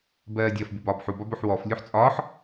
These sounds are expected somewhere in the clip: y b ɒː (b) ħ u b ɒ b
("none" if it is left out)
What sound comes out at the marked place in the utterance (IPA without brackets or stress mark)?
b